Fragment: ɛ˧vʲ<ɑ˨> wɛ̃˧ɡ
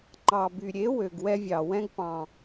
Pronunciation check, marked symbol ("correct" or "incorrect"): correct